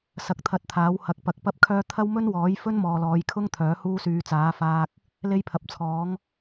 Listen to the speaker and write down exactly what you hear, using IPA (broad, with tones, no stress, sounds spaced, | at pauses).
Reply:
s ɐ˧ k̚ t̪ʰ ɐ˧ t̚ t̪ʰ aː˨˥ w h ɐ˨˥ k̚ p ɐ˨˥ k̚ p ɐ˥ p̚ kʰ œː˥ t̪ʰ ɐ˥ w m ɵ˥ n w ɔː˨˥ j f ɵ˥ n m ɔː˨ l ɔː˨˧ j kʰ ʊ˥ ŋ t̪ʰ œː˨˥ h uː˥ s yː˧ t͡s aː˨˥ f aː˧ k̚ | l e˥ j pʰ ɐ˨ p̚ t͡sʰ ɔː˨˥ ŋ